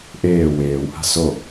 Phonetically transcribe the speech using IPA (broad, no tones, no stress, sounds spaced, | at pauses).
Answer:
ʔ eː w eː w h a̤ s o